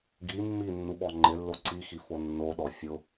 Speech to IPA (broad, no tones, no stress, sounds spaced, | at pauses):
ɡ i mː i nː u ɓ ɔ ŋ͡ǃ ɪ lː o ǀ i x i f o nː o ɗ ɔ fʲ ʊ